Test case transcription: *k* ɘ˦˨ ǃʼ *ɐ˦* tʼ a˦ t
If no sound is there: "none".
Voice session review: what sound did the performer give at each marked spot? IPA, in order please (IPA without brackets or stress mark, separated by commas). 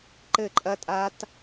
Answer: ǃ, ɐ˦